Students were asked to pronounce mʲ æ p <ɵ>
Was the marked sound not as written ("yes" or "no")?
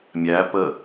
yes